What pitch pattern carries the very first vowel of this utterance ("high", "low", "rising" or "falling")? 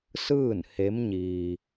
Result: falling